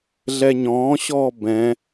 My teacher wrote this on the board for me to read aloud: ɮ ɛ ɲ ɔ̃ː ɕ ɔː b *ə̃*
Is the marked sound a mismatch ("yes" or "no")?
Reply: yes